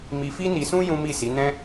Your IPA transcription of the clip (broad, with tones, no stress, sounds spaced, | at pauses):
m i˧ f i˦ n i˧ s ũ˦ j ũ˦ m i˦˨ s i˨˦ n ɛ̃˦